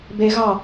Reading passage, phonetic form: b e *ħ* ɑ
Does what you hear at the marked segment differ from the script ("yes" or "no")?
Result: yes